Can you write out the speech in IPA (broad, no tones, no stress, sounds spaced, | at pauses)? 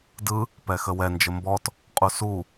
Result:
d ɯ | p ɛ x ə w ɛ n d͡ʒ ə m b ɔ t | qʼ u s u